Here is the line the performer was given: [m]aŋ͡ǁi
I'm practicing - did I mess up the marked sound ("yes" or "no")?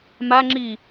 no